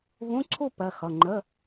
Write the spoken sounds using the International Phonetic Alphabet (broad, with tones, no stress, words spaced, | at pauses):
vũ˧˥˧ǀʰu˥˧ pɜ˩˧˩xʌ˩˧˩ ŋ͡ǃə˧˥˧